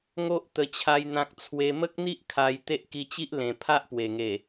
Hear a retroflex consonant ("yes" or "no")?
no